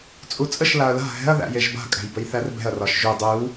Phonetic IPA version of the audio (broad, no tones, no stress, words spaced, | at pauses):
t͡sʼut͡sʼəʃ laɐ̯la̤ ɦɛ̤ɐ̯ ðæ̰jeʒba̤ kʼæ̤jbəjθærbɛ̤ɐ̯ rɒʃʒʉ dˤʉw